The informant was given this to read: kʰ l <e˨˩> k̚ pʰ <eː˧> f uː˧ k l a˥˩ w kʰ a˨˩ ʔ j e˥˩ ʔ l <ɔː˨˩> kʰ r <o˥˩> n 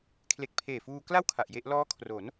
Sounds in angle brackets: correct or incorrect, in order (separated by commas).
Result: correct, incorrect, incorrect, incorrect